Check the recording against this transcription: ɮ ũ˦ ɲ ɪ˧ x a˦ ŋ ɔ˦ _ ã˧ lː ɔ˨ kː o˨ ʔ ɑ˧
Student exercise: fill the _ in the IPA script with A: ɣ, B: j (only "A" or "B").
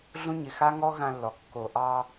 A